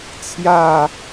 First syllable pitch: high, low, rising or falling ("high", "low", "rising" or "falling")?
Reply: falling